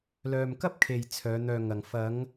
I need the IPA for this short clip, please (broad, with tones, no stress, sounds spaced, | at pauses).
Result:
l œː˨ m k ɐ˥ p̚ kʰ e˨ j t͡sʰ œː˨˧ n̪ œː˧ ŋ ɐ˨ ŋ f ɐ˨˧ ŋ